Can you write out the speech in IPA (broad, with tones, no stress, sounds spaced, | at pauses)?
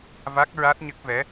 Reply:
v a˦˥ k̚ ɹ a˦˥ t̚ ɲ ə˦˥ k̚ v ɛ˧˥